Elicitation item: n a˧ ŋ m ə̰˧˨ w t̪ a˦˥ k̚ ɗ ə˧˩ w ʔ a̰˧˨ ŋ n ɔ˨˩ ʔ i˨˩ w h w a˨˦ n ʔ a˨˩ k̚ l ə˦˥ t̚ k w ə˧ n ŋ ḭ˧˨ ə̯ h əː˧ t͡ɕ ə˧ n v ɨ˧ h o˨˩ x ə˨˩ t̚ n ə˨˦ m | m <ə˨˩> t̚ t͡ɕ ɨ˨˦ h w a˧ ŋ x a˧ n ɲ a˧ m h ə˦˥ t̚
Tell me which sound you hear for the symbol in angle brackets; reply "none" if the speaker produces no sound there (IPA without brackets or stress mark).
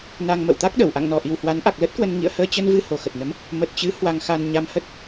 ə˨˩